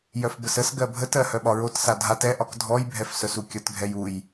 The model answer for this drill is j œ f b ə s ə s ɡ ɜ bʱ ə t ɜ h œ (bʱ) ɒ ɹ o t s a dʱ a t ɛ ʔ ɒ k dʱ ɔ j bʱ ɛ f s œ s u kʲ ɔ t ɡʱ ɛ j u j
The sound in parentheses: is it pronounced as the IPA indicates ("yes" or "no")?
no